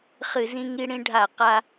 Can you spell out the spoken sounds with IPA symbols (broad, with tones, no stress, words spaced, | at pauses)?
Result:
χɨ˧˩˧zĩ˧ŋi˧ ɽĩ˧ɖʱa˧˩˧ qa˧